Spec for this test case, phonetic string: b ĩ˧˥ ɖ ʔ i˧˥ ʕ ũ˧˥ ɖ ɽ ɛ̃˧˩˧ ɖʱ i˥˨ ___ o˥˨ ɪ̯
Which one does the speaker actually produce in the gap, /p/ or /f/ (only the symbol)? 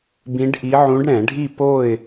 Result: p